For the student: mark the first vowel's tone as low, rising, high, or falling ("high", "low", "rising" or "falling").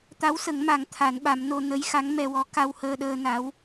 rising